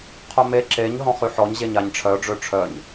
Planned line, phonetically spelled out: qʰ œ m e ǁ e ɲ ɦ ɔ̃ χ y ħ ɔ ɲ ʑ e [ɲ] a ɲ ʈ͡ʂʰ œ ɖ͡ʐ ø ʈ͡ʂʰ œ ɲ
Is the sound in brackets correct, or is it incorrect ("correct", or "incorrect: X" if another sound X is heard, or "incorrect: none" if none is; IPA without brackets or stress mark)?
correct